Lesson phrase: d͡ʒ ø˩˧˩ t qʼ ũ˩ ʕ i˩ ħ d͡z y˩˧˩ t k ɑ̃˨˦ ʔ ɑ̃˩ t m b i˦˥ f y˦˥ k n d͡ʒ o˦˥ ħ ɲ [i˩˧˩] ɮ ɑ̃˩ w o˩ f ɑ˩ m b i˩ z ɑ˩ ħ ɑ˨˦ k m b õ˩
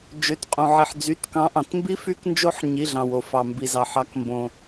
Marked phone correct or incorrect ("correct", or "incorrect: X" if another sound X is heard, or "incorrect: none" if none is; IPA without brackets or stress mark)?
correct